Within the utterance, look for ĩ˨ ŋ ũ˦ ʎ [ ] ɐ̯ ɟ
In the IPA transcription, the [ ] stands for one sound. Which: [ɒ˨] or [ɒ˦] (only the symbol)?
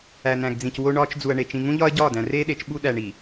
ɒ˦